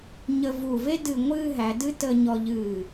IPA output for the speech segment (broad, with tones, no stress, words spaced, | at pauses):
ɲə˧vu˧˩ve˥ dɨ˧˩ŋʷɨː˥˧ɦæ˩˧ dɨ˥ tə˧ɲɔ˧ʎɨː˧˩